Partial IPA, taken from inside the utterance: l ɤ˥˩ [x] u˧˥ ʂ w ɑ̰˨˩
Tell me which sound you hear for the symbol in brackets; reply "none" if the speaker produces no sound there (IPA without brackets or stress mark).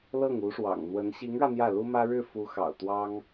ŋ